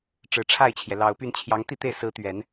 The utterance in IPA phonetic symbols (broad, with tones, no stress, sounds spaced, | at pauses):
ʈ͡ʂ ɻ̩˨˩ ʈ͡ʂʰ a˥˩ ɪ̯ t͡ɕʰ j ɛ˩ l ɑ˨˩ ʊ̯ p y˥˩ n t͡ɕʰ j ɑ˧˥ ŋ t̪ i˥˧ t̪ e˥˩ ɪ̯ s ɹ̩˧˥ t̪ ɥ ɛ˨˩˦ n